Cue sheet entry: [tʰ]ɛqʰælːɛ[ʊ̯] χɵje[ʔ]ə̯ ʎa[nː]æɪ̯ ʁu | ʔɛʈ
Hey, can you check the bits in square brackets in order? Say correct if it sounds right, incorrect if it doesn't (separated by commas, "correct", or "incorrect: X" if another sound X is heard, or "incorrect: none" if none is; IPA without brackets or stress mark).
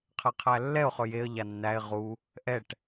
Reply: incorrect: qʰ, correct, incorrect: none, correct